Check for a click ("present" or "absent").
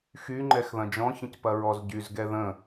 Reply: present